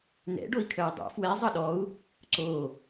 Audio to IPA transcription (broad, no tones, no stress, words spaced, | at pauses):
nɛ̰ ɖoi̯kʰœjdˤo̰ fwɛ zˤʌɗɔu̯ | ǀo